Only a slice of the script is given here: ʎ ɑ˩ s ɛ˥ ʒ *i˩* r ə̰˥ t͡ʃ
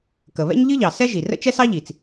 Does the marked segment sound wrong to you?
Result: no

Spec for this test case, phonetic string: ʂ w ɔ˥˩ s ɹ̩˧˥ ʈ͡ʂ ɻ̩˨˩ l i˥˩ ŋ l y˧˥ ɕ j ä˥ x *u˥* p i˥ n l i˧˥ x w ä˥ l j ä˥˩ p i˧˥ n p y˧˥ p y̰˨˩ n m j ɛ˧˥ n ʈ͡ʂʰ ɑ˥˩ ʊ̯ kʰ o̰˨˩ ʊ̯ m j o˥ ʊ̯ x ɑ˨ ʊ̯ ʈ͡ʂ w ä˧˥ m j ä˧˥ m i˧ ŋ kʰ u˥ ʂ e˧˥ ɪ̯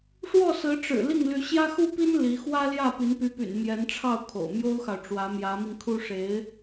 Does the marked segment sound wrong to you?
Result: no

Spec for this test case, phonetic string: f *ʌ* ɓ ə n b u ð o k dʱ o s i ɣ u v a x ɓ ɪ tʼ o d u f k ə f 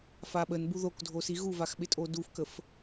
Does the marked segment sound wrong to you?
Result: yes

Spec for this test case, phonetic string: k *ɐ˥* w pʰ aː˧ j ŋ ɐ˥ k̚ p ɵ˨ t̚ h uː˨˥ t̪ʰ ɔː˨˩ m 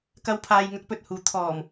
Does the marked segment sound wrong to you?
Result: yes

